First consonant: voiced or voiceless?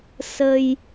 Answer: voiceless